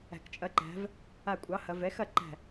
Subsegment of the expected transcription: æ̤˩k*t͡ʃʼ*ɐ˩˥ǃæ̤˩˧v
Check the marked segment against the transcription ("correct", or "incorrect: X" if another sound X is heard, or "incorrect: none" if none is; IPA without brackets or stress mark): correct